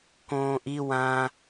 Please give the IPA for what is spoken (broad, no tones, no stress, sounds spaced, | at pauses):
k õː ʔ i w ã